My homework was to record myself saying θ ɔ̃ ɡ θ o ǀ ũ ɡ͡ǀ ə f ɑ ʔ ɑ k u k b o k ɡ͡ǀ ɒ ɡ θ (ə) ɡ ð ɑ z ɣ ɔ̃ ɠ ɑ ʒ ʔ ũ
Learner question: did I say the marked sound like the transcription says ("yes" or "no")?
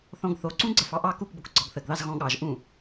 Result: yes